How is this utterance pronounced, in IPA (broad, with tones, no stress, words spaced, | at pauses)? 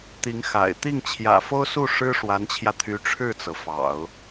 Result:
t̪i˧˥ŋxa̰˨˩ɪ̯ t̪i˥˩ŋt͡ɕʰjä̰˨˩fo˥ʊ̯su˥˩ ʂɻ̩˥ ʂwa˧˥nt͡ɕʰjä˧t̪ʰy˧˥ ʈ͡ʂʰɻ̩˥˩t͡sɤ˩ fɑ̰˨˩˦ʊ̯